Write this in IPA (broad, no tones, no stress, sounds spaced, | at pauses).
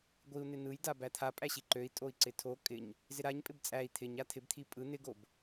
ɡʷ i u̯ n̪ ɪ n̪ ɯ j d a b æ t̪ʰ a pʼ æ ɕ i ǃ ø i̯ tʼ o i̯ ǀ ɪ tʰ o kʼ ɪ ɲ | z ɪ ɾ a ɲ pʼ ɪ b t͡sʼ æ i̯ t̪ʰ ɪ ɲ a t̪ʰ ɪ b t̪ʰ i pʼ ɯ n̪ ɪ ɡ o b